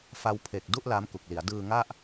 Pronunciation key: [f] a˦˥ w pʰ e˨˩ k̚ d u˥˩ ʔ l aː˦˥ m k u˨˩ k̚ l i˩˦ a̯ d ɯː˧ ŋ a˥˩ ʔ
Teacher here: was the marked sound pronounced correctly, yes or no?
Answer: yes